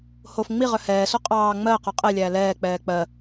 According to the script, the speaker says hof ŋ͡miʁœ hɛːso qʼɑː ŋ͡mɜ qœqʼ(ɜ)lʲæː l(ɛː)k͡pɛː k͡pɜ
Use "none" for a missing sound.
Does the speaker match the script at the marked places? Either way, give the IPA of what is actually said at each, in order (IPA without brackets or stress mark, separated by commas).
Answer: ɛ, ɛː